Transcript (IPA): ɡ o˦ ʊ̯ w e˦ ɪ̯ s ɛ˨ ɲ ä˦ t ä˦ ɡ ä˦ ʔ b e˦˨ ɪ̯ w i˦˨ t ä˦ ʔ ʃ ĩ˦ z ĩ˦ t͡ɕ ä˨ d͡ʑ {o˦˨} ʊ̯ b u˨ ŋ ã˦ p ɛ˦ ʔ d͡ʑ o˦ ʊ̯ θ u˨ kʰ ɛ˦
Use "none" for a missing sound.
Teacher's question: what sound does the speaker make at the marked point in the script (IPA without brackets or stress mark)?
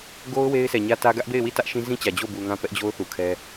o˦˨